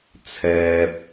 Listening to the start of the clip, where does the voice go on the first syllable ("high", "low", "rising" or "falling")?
low